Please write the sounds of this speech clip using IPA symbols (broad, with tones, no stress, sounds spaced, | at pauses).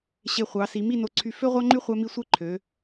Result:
ɕ e˧˩ χʷ ɑ˩˧ s i˩˧ m i˥˧ n o˧ ǀʰ y˧ f ø˥ ʁʷ ɑ˥ ŋ͡ǃ y˥ χʷ æ˥ m i˥˧ sʷ e˥ ǃʰ ø˩˧